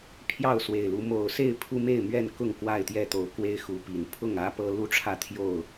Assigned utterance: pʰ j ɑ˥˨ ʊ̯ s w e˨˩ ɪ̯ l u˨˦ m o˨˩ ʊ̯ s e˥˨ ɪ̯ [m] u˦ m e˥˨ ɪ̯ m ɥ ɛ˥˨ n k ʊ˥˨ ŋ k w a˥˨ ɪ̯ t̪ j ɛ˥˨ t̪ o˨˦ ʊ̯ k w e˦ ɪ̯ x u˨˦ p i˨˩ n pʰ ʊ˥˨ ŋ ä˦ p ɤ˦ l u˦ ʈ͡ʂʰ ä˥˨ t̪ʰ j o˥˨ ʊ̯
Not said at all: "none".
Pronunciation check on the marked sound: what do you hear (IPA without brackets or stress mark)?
pʰ